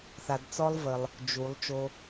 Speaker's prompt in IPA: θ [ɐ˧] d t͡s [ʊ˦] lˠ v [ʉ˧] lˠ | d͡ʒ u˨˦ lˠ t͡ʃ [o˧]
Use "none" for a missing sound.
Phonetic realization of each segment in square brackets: a˧, ɔ˦, ə˧, o˧

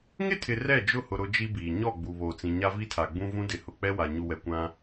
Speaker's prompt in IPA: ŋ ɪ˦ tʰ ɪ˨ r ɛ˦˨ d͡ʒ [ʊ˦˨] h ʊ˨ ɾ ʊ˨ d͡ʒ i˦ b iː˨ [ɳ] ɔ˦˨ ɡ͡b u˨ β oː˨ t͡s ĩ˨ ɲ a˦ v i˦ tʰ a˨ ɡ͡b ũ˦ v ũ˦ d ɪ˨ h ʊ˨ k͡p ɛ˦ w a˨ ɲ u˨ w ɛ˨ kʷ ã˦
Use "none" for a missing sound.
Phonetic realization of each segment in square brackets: ʊ˦˨, ɲ

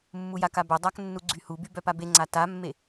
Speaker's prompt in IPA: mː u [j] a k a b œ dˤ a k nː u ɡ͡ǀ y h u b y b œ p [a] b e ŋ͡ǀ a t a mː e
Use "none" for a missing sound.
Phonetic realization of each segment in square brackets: j, a

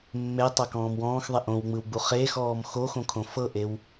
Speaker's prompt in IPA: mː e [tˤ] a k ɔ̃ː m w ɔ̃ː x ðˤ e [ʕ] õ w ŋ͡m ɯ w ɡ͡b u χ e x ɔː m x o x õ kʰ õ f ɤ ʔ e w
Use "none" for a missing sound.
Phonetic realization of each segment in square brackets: tˤ, ʔ

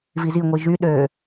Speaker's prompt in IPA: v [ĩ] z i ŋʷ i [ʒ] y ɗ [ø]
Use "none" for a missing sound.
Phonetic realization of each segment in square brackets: i, ʒ, ø

